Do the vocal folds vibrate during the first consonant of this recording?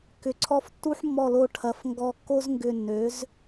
no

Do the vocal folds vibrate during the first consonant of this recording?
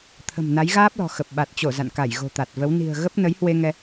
no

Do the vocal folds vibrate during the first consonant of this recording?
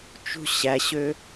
no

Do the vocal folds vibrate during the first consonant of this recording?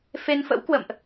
no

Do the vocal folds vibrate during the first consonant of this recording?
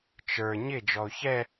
no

